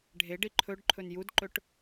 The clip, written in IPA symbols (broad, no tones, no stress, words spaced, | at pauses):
ɖʱeɖi ǃʰɵɖǃʰɵn judǃɵʈ